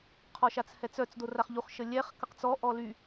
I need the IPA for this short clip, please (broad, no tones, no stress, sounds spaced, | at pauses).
qʰ ɔ ʃ a t͡s h ɛ t͡s œ t͡s d o r a χ ʎ u χ ʃ ə lʲ ɛ χ k ə q t͡s ɔ ʔ ɔ l y